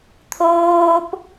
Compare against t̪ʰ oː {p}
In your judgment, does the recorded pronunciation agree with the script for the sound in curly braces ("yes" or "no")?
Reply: yes